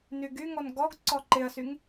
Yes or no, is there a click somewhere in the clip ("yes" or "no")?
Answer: yes